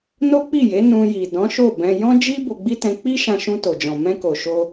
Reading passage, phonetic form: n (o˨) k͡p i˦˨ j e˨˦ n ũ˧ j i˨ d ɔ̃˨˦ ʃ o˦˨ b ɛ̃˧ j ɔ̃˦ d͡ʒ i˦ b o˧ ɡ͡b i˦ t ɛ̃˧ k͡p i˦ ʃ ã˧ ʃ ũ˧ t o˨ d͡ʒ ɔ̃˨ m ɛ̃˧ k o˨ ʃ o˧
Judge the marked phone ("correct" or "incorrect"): incorrect